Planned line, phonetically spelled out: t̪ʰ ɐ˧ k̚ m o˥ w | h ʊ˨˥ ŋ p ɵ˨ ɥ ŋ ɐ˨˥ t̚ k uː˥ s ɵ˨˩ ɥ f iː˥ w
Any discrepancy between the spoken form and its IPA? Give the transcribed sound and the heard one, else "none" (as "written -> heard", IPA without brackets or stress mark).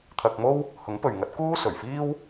none